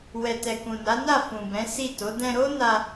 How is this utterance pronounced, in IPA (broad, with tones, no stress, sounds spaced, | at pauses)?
w ɛ˨ t ɛ˨ k ũ˨ n a˨˦ n a˦˨ f ũ˨ b ɛ̃˨˦ s i˦˨ t o˨˦ d ɛ̃˧ ɾ o˦ n a˧